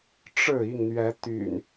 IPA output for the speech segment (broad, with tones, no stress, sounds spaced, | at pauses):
ʈ͡ʂ ɻ̩˥˨ i˥˨ ŋ n̪ ɥ ɛ˨˦ t̪ y̰˨˩ n